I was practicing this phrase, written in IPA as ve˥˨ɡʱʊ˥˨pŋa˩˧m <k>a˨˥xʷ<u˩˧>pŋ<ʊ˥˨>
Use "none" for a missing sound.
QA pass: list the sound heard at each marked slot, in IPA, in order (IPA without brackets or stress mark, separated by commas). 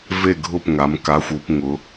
k, u˩˧, ʊ˩˧